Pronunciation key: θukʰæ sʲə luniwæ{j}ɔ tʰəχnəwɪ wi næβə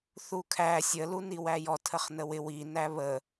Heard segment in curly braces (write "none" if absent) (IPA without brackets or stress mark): j